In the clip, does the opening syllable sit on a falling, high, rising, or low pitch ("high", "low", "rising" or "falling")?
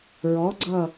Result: rising